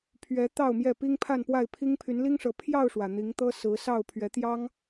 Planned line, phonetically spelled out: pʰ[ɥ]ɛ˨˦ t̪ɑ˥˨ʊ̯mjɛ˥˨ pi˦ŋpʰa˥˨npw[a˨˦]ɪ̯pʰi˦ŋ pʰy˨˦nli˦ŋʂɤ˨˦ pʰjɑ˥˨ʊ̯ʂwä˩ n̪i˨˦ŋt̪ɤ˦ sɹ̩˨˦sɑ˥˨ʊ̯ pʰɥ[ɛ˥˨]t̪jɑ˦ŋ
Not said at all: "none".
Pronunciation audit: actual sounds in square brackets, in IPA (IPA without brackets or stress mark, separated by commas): ɥ, a˥˨, ɛ˨˦